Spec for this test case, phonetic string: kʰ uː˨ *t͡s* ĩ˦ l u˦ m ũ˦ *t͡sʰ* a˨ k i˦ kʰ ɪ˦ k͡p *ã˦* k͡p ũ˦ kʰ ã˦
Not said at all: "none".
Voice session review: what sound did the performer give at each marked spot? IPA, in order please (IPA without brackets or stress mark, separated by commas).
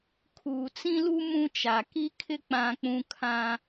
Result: t͡s, t͡ʃ, ã˦